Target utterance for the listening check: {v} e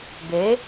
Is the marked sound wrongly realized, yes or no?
yes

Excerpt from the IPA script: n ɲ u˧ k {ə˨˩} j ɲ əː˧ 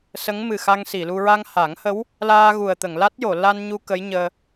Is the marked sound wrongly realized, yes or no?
yes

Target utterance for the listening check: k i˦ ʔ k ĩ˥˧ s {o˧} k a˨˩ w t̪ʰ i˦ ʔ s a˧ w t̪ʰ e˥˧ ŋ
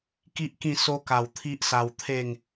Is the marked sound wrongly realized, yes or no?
no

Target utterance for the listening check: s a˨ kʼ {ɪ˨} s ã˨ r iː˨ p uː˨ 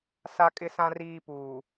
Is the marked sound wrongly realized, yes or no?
no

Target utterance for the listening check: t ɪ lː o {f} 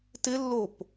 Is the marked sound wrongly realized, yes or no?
yes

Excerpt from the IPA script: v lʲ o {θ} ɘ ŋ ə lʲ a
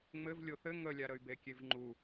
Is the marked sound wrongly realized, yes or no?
no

